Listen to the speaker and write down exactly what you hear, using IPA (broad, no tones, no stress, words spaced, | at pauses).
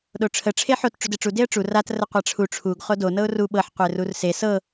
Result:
ɗoʈ͡ʂʰə ʈ͡ʂʰeħot ʈ͡ʂudeʈ͡ʂu deə̯ʈ͡ʂu rat rəqʷaʈ͡ʂʰu ʈ͡ʂʰuɡ χodo nɤʊ̯ru ɓɤħ qʷerurse sɤ